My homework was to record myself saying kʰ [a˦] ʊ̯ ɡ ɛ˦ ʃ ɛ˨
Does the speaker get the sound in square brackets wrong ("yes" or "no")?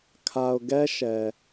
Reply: yes